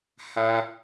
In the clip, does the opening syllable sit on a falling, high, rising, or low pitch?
high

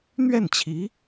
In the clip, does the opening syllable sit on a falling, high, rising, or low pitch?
falling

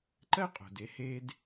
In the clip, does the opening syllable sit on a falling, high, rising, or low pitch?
high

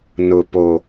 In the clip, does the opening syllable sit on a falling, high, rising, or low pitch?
low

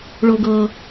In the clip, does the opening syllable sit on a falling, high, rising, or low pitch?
low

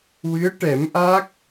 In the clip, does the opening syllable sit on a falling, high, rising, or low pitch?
rising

